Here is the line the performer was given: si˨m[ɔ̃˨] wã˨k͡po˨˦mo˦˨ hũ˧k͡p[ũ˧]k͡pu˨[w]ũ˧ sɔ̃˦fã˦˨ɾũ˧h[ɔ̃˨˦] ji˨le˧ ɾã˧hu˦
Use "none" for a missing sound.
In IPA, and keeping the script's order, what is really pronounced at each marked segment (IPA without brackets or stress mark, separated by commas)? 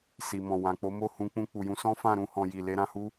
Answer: ɔ̃˨, ũ˧, j, ɔ̃˨